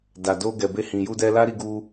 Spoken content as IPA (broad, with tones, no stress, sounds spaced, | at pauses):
d a˨ d o˧ ɡ ɛ˨ b e˧ h ĩ˨ j u˧ d ɛ˧ l a˦ ɾ i˧ ɡ u˧